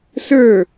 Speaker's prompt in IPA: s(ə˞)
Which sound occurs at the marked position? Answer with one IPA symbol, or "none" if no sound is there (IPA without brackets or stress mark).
ə˞